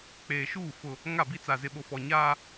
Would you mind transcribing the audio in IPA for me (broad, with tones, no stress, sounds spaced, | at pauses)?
k͡p eː˨ ʃ uː˦˨ f ʊ˦ | ŋ a˦˨ b i˦ t͡s a˨ z ɪ˨ ɓ o˨ f ɔ˨ ɲ aː˦